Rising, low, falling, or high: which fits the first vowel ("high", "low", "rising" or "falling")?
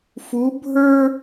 rising